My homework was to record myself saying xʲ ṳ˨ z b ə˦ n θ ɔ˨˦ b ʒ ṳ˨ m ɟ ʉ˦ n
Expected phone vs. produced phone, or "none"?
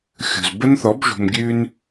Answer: ɟ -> ɡʲ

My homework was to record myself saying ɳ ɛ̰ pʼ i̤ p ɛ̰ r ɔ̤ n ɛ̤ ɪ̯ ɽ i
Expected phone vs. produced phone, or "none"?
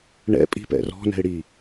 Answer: none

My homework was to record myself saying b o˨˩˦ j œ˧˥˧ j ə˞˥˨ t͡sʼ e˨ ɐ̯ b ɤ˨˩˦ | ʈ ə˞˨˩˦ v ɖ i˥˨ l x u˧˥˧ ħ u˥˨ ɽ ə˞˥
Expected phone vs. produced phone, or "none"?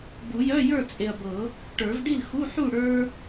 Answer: o˨˩˦ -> u˨˩˦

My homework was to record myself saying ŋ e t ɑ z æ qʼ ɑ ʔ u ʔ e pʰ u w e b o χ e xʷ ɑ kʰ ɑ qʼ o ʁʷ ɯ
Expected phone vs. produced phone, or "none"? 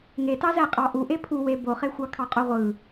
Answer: none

